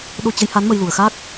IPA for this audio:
ɗ o˧ t͡ɕ ə˨˦ j h a˨˦ n m ə˧ j l u˨˩ ə̯ x aː˦˥ k̚

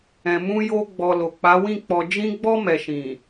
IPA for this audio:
ɛ̃˨ m ũ˧ j o˧ ɡ͡b ɔ˨ l o˨ k͡p a˨˦ w ĩ˦˨ k͡p ɔ˨ d͡ʒ ĩ˧ ɡ͡b ɔ˧ m ɛ˨ ʃ ĩ˨

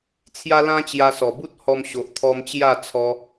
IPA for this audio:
t͡sʰ j a˦ l ã˦ t͡ɕ j a˧ s ɔ˨˩ b u˦ t̚ h ɔ˧ m ɕ o˨ ʔ t̪ʰ ɔ˧ m t͡ɕ j a˥˧ t͡sʰ ɔ˧

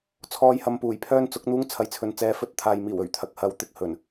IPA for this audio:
t͡sʰ ɔː˧ j h ɐ˧ m p uː˨˩ j pʰ œː˥ n t͡s ʊ˨˥ k̚ n̪ uː˥ ŋ t͡sʰ ɐ˧ j t͡sʰ ɵ˧ n t͡s ɛː˧ f ɵ˧ t̚ t̪ʰ aː˨ j m iː˨˩ w ɵ˨˩ ɥ t̪ʰ ɐ˨ k̚ h ɐ˧ w t̪ ɪ˧ k̚ h ɵ˨˩ n

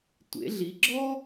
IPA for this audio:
tʷ ḛ˩˧ ɮ i˩˧ ɡ͡ǁ ɔ˥

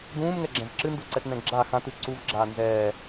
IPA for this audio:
d ũː m ŋ ɛ ɡ͡ǁ ɛ̃ v ǁ ɨ n d u ǀ ɛ t n ɛ̃ ɡ͡ǁ a x ã t ɨ ǀ u v ɡ͡ǁ aː n z ɛː

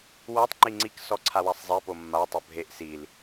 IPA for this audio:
w a tˤ ŋ͡ǃ i ŋ͡ǀ i k s ɔ ǀʰ a w a sˤ zˤ e p o mː a tˤ o bʱ e ʔ s i l

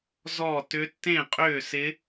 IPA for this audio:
z ɔ˥˨ t ʏ˦˥ tː ẽ˥˨ qʼ ʏː˥˨ s ɪ˦˥

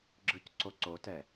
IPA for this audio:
ɡ͡ǁ ɯ c ǀ o ǀ o t ɛ

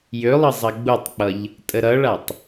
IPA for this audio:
j ø lˠ ʌ zˤ ɐ ɡ͡b u tˤ k͡p ʌ ʎ | tʼ ə ɾ ʌ ɭ a tˤ

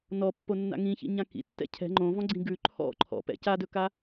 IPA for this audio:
n ɔ pː o nː a̰ ŋ ĩ ç ḭ ɲ ã k ḭ tː ɛ̰ cʰ ɛ̤ ŋ͡ǃ õ v ɔ̃ ɡ͡ǀ ĩ ɡ ʉ ǃʰ ɔ̰ ǃʰ ɔ̰ p ɛ̰ c a d ɵ k a

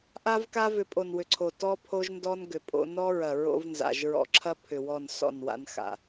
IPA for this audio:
ʔ a˦ v k a˦ v ʏ˨ pʼ o˨ n w ʏ˨ ǀʰ o˨ t ɔ˦ pʰ o˦ ʒ n d ɔ˦ n ɡ ʏ˨ pʼ o̰˦ n ɔ˦ ɹ ɐ˨ ɹ o̰˦ v n z a̰˨ ʒ ɹ ɔ̰˦ ǁʰ ɐ˦ pʰ ʏ˨ w ɔ˦˨ n s ɔ̰˦˨ n w a̰˦ n x a̰˨

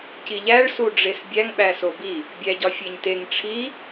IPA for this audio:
c i ʎ æ ɭ s u ɖ͡ʐ e s bʲ æ ŋ ɓ æ s o b i | bʲ æ ɟ ɒ fʲ e ɲ t e ŋ ʈ͡ʂʰ i

